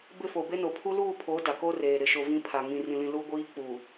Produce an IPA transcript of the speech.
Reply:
b ɪ˦˨ f o˨ b e˦ n o˨ pʰ u˦ l uː˦˨ pʰ oː˨˦ d a˨ k o˦ r eː˨ ɾ ɪ˨ ʃ o˨ v ĩ˦ pʰ a˨ ŋ ĩ˨ r ĩ˨ l ĩ˨ l u˦ ɡʷ iː˦ k͡p u˨

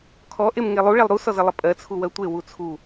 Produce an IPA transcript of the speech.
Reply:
kʰ ɔ ʔ e m ŋ e lˠ u ɭ ɛ lˠ ɾ u s ɔ z ə lˠ ə pʼ ɜ t͡sʰ u w ɜ tʷ e w u t͡sʰ u

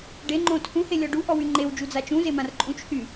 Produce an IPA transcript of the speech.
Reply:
ɖ e ŋ͡ǃ õ tʰ ũ h e lʲ ɔ ɖ u ʔ ɔ w y ŋ͡ǃ e w d͡ʒ u d͡z a t͡ʃ ũ z e m ã r ǃʼ ũ t͡ʃ h y

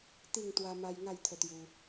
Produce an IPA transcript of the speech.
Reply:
t̪ i˥˧ ŋ t̪ w a˦ m a˦ j ŋ a˥˧ j t̪ʰ ə˧ t̪ j u˧

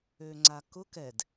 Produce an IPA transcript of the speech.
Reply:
ø ŋ͡ǀ a k ʊ k ɛ d

